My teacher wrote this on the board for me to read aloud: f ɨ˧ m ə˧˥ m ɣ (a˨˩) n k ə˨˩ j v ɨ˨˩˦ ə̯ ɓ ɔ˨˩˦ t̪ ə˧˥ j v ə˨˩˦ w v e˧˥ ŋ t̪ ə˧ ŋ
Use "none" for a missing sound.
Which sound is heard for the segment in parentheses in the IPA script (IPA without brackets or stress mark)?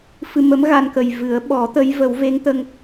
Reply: a˧